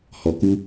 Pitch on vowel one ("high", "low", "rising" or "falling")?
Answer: low